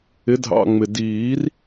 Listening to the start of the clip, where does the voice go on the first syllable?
rising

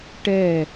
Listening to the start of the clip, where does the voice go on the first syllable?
falling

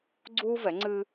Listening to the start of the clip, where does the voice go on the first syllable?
high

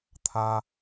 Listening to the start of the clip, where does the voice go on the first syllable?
high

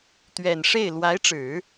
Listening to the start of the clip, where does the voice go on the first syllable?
low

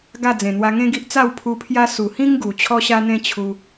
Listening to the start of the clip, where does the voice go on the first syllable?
falling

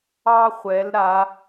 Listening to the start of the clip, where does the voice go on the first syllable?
high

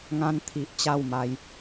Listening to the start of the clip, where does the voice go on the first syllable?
high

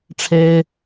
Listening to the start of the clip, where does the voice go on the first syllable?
high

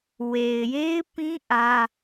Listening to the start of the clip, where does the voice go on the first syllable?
low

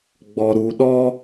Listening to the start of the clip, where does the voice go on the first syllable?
low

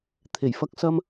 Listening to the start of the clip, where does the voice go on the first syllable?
low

